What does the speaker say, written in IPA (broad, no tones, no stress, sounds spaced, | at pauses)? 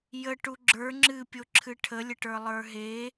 j ə ʈ u ɡ͡ǁ ə˞ ŋ͡ǁ ɨ pʲ o ǁʰ ɨ ʈʰ ə lʲ ə ʈ ə˞ lˠ ə˞ ɦ e